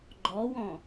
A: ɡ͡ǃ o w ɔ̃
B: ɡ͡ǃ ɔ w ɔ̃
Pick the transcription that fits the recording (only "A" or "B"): B